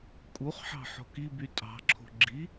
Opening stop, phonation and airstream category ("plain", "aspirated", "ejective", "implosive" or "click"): ejective